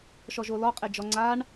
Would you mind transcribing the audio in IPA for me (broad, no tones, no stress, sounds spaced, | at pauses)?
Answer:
ʃ ɔ ʒ o l ɔ qʼ e d͡ʒ ɔ ŋ͡ǀ a ɳ